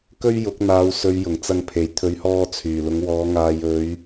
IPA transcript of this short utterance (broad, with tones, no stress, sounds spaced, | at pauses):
k ɵ˥ ɥ j ʊ˨˥ k̚ n̪ aː˨˧ w s ɵ˨˧ ɥ j ʊ˨˩ ŋ t͡s ɐ˧ ŋ pʰ e˨˩ j t̪ʰ ɵ˨˧ ɥ h ɔː˧ t͡sʰ yː˨˩ l ʊ˨˧ ŋ w ɔː˨˧ ŋ aː˨ j ɵ˨˧ ɥ